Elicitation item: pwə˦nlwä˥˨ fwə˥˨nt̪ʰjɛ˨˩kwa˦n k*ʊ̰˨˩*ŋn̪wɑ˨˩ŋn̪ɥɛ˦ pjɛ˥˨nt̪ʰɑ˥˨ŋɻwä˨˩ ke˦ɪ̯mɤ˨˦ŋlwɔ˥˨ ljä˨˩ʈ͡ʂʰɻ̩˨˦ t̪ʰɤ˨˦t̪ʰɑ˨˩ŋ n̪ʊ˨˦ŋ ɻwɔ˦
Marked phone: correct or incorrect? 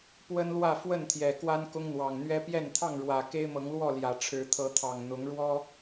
incorrect